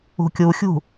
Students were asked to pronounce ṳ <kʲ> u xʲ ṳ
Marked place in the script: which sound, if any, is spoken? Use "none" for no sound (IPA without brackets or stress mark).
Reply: kʲ